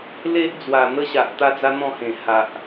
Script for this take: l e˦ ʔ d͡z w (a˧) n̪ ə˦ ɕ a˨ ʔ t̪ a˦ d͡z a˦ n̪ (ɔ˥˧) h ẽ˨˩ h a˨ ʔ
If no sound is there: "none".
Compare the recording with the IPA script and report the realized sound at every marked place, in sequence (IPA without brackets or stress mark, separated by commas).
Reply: a˨˩, ɔ̃˥˧